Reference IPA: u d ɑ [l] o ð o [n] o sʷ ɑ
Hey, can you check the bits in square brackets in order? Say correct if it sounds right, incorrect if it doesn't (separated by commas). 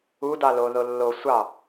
correct, incorrect